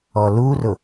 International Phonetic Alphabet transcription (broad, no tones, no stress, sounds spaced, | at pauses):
ɔ l u r ʊ